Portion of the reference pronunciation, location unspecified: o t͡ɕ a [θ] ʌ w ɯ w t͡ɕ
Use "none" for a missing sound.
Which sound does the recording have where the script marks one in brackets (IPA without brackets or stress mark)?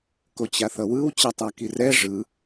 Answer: θ